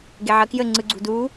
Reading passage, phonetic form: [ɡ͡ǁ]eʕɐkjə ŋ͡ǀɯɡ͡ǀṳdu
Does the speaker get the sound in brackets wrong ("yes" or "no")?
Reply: yes